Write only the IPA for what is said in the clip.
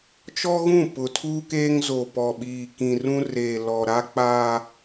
t͡ʃɔ˦ɣũ˦˨ pʊ˨tʰuː˦ keː˦ŋzo˨pɔ˨ɓiː˨ kĩ˨rũ˦reː˨lɔ˨ ɾa˦k͡paː˦

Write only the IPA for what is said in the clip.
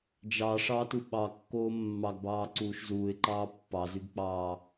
d͡ʒɑ ʂɑtu ɓɑkːoː mːɑɡbɑːǀuːʃ zuːɪ̯ǃɑː pːɑzyɡk͡pɑː

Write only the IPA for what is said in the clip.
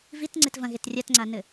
vit ŋ͡ǀetvɐ̃ɣet rʲatŋ͡ǀanɘ

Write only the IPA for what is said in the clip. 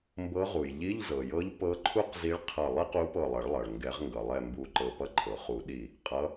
mbɤ˧˥ʁu˩j ʎi˧˥˧ʎzɤ˩jɤ˧˥ʎ pɤ˧˥ǃʰu˥q zi˧˥ɭqʰʌ˧˩ lˠi˥qu˧˥pɤ˧˩lˠʌ˨˩˦ɭ lˠʌ˩ɭ ŋɡɛ˨˩˦ʁŋɡʌ˩lˠɛ˧˩ mbu˧˩ǃɤ˧˩pʌ˥ ǃʰɤ˩χu˨˩˦ɗi˧˩ | qʼʌ˧˥

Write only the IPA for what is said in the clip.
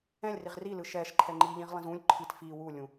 ɛ̃lʲriʁ rilɯ ʃɛʃ ǃʰɛŋ͡ǃiʎĩʁ lˠĩzũlʲ ǃʰit fi wulʲũ

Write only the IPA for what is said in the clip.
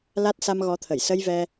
la˦˥t̚ sa˧mɣɔ˨˦t̪ʰə˧˩j sə˧jvɛ˧

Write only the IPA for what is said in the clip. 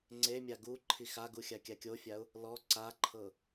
ŋ͡ǀemʲa ɡu ǃʰixaɡu xʲakʲakʲofʲaʊ̯ | lɔ ǀaǃʰɤ

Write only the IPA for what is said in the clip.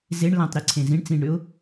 zeɳ lãtˤɾiǀʰẽ zĩɳ t͡sĩɳɾʏʊ̯

